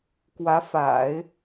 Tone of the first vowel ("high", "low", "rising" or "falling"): rising